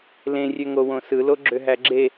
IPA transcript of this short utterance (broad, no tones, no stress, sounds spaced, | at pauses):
l ẽ rʲ ø ŋ o w õ s ɯ l o ɡ͡ǁ ø ɦ æ ɡ͡ǁ e